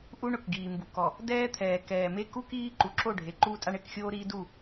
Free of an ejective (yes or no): no